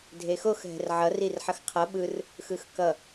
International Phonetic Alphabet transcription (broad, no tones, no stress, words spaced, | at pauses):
dʱexox ɦɛ̤rʕʌ rirħʌxqʰʌ ɓɯr | xɯxkʌ